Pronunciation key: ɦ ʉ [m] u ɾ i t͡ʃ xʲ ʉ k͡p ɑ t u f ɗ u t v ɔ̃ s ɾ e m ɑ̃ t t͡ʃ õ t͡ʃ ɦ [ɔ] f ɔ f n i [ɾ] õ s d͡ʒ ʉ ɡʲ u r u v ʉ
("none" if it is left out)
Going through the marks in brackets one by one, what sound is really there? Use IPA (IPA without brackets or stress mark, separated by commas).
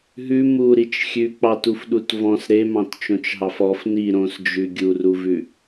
m, ɑ, ɾ